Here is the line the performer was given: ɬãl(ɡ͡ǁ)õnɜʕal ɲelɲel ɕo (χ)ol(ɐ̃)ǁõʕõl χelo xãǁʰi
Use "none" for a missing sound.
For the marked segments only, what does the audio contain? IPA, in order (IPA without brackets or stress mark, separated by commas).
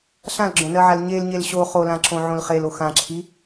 ɡ͡ǁ, χ, ã